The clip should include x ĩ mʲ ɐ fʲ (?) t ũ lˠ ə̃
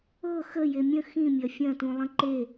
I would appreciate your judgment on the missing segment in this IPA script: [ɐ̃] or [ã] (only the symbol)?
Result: ɐ̃